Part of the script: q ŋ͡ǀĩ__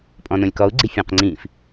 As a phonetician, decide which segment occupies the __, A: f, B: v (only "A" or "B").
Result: A